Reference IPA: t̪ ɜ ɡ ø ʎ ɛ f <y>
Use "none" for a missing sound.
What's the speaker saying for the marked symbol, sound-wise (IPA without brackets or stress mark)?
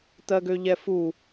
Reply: u